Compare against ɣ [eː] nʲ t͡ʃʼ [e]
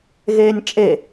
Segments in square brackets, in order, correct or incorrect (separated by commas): correct, correct